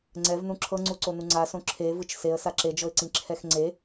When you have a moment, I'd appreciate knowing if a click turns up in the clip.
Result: yes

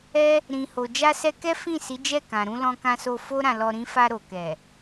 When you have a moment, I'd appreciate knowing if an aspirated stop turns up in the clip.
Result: no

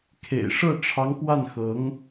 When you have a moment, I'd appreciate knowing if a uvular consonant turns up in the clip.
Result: no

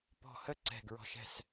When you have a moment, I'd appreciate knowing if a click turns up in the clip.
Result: yes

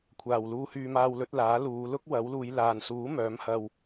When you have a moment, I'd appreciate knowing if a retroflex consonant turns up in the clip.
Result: no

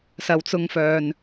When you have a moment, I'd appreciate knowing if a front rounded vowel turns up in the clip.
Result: yes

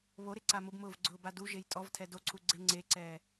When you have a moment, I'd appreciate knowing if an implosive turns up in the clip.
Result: no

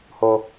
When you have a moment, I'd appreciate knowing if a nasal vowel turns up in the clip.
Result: no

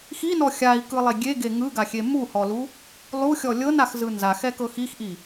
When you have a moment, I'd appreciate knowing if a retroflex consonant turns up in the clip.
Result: no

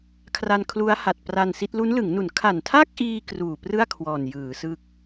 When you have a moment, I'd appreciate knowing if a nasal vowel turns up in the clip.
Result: no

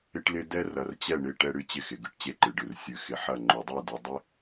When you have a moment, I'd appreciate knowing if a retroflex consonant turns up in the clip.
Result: yes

